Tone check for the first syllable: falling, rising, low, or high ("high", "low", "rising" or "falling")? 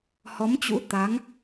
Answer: rising